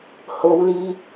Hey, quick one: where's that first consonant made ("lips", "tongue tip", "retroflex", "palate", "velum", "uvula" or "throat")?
throat